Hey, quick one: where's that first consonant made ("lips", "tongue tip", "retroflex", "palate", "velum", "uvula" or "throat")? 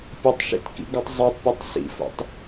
lips